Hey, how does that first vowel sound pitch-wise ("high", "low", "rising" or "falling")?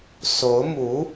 rising